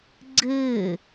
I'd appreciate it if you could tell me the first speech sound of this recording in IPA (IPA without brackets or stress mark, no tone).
ɡ͡ǀ